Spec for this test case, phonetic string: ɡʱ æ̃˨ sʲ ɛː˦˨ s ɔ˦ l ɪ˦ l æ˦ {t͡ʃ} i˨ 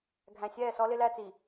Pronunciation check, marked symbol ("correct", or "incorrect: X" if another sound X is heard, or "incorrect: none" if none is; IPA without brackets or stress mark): incorrect: t͡s